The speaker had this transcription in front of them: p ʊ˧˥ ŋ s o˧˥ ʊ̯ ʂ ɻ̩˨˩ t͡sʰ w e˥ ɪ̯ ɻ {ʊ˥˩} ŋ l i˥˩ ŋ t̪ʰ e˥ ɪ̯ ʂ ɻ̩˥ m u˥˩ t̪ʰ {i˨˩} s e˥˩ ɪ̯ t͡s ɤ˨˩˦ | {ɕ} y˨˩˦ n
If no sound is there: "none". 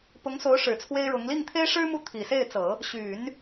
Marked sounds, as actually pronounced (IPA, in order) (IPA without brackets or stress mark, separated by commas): ʊ˧˥, i˨˩, ɕ